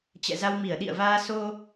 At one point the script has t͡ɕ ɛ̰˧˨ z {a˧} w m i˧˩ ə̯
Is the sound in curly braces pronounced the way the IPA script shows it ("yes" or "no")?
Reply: yes